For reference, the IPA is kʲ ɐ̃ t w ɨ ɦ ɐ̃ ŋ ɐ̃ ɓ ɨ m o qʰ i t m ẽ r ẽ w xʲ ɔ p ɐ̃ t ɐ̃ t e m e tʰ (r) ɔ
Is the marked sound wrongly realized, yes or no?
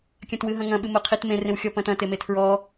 yes